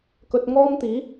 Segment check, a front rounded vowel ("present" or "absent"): absent